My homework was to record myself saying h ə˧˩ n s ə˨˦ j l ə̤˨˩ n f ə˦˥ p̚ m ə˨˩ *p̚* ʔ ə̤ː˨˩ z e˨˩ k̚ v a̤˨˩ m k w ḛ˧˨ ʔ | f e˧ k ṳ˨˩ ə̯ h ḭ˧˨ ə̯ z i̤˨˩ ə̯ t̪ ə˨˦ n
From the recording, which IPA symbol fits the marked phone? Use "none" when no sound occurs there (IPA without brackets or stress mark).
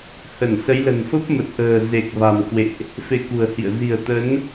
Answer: t̚